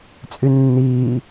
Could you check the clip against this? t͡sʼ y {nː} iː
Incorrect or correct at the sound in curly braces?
correct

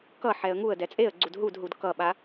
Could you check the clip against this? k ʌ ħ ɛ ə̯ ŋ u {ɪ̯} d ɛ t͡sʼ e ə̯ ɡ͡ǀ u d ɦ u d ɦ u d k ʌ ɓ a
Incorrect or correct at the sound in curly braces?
incorrect: ə̯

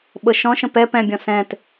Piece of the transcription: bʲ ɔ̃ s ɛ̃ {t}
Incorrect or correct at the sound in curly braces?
correct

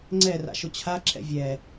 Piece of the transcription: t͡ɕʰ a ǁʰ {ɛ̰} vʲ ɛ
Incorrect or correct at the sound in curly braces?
correct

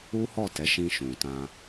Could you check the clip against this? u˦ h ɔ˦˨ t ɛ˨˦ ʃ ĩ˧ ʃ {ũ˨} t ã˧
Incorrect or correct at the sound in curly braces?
correct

